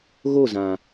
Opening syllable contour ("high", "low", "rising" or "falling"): falling